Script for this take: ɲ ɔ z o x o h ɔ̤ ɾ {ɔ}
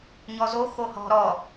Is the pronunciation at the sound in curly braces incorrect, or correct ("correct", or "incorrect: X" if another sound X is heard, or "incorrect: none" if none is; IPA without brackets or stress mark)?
correct